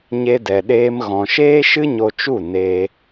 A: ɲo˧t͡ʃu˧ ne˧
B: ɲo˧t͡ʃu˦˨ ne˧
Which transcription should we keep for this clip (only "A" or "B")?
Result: B